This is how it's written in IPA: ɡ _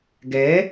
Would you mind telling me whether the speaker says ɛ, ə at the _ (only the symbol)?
ɛ